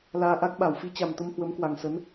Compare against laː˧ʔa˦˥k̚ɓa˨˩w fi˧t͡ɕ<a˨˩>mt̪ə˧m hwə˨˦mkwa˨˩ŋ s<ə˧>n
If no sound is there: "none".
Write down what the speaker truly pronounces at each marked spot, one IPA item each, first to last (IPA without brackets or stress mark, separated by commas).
a˨˩, ə˨˦